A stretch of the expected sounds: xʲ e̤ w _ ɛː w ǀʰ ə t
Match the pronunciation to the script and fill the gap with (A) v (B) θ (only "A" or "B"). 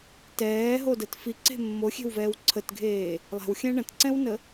A